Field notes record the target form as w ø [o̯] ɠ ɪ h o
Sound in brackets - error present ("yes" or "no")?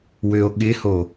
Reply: no